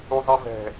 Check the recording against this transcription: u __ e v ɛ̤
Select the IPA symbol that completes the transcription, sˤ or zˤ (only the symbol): zˤ